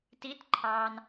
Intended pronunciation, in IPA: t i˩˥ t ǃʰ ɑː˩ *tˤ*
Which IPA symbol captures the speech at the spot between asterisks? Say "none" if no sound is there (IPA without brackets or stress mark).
n